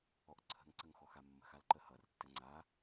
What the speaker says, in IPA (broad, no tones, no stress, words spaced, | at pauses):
ɔʔǀʰə̤ŋǀəŋ xɔxamːə̤xal ǃəhʌrtːə ŋ͡ǀa